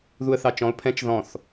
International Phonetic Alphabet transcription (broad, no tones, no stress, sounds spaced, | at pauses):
ð u ə̯ θ ɑ t͡ʃ ɔ̃ ʊ̯ pʰ ɛ̃ t͡ʃ ð ɔ̃ θ